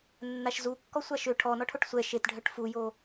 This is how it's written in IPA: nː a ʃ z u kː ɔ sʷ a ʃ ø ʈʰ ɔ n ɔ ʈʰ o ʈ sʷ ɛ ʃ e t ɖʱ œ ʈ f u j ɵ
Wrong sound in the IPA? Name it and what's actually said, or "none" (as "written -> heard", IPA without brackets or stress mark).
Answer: ɵ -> o